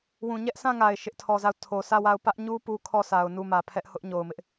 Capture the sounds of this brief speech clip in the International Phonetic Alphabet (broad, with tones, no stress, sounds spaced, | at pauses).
w ũ˨ ɲ ɛ˦ ʔ sʰ ã˦˨ ŋ a˨ ɪ̯ ʃ ɪ˦ ʔ tʰ ɔ˨ z a˦˨ ʊ̯ tʰ o˨ sʰ ä˦˨ w a˦˨ ʊ̯ p ä˦ ʔ ɲ u˦ p u˦ kʰ ɔ˦ sʰ a˨ ʊ̯ n u˦˨ m ä˨ pʰ ɛ˦ ʔ h ʊ˦ ʔ ɲ o˨ ʊ̯ m ɪ˦ ʔ